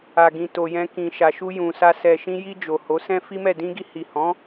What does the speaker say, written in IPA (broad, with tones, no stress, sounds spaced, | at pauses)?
a˨ ɡ ĩ˨ t o˨ j ɛ̃˧ k ĩ˨ ʃ a˨ ʃ u˧ j ũ˨ s a˧ s ɛ˨ ʃ ĩ˧ j i˧ d͡ʒ o˨ h o˨˦ s ɛ̃˦ f i˦ m ɛ˦˨ d ĩ˧ ɡ i˧ h i˨ h ɔ̃˨˦